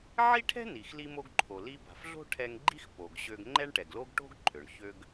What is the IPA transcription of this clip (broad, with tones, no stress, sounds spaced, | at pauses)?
ʕ i˥ ʈʰ ɛ̤˥ n i˩ x l i˧ m o˧ ɡ ǃʰ o˩ l i˧ b a̤˩ f ɮ o̤˥ ʈʰ ɛ˧ ŋ ɡ͡ǃ i˥ x p o˩ ɡ ɕ ø˧ ɡ ŋ͡ǃ ɛ˥ ɳ ʈ ɛ˩ ɡ l o˥ ɡ ʈ o̤˥ ɡ ǃʰ ø˩ ɳ ç ø˧ ɡ